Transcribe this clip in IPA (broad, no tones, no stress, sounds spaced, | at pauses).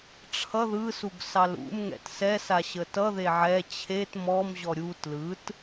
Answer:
ʈ͡ʂʰ ʌ ð ɯ s u ɡ s ɑ l ṵ m ŋ ɛ̰ t s ɛ s a ɕ ə t ʌ ð e ʕ ɛ t͡ɕʰ e t m ɔ m ʑ ɔ ɾʲ u t l ɯ t